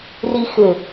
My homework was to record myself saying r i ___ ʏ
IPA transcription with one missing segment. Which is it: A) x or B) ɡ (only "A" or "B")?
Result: A